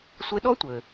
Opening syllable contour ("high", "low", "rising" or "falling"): rising